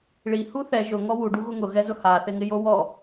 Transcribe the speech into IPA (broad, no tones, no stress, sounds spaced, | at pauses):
ɭ i h u θ ɛ ʒ ʊ ŋ ɔ w u ɖ u ɣ ʊ ŋ ʊ ɣ ɛ z ʊ h a θ ɪ ŋ ɪ j o w ɔ